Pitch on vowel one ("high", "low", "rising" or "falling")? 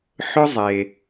high